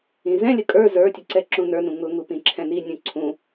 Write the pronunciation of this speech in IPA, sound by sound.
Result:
ĩ z ɛ̃ lʲ ə kʼ ə˞ z ə˞ tʲ ə ǀ ɛ ǁ ũ n ə˞ n ũ ŋ ʊ ŋ u p ĩ ǁʰ ɛ̃ n i nʲ ũ ǀʰ ũ

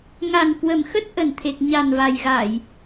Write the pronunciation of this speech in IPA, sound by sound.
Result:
ŋ a˨˩ n k w ə˨˩ m x ə˦˥ t̚ ʔ ə˨˩ n t̪ʰ e˨˩ k̚ ɲ a˨˩ n v a˨˩ j ɣ a˧˩˨ j

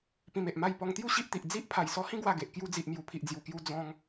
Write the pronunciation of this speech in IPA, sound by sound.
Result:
p ĩ˧ m e˨ ʔ m a˥˧ j p ɔ˧ ŋ t̪ j u˥˧ ɕ i˦ ʔ t̪ i˨ ʔ d͡z i˦ ʔ pʰ a˨˩ j s ɔ˧ h ĩ˦ ɡ w a˥˧ ɡ e˨ ʔ k j u˧ d͡z i˨ ʔ m j u˨˩ pʰ i˨ ʔ d͡z j u˨˩ k j u˧ d͡z ɔ̃˧ ŋ

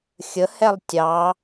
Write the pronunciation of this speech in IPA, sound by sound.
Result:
xʲ ə h ɛ lˠ tʲ ɑ

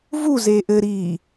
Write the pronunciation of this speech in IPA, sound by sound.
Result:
v u z eː ʔ ɘ ɾ iː

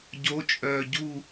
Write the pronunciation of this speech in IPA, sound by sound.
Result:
ɟ o t͡ʃʼ œː ɟ u

